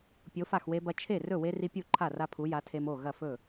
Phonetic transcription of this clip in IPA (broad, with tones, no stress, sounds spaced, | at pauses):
pʲ o˨˥ f a˥˩ x w e˦ b ɐ˦ t͡ʃʰ e˥˩ r ɵ˥˩ w e˦ r i˦ pʲ u˥˩ ǃʰ a˥˩ r a˦ pʰ u˨˥ j a˨˥ tʰ e˦ m o˥˩ ɣ ɐ˥˩ f ɵ˥˩